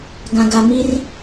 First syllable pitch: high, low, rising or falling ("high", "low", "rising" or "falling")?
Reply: low